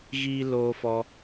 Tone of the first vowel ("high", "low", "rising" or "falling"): high